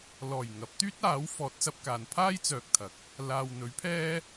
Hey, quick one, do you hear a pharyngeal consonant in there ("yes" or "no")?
no